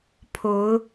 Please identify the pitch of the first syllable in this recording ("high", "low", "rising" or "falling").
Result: rising